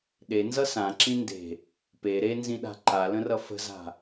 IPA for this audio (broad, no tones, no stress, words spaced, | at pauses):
ɗenzʌ sãǁĩ nde̤ | pe ɾenzĩɗa̤ ǃalə̃rʌ fə̤za̤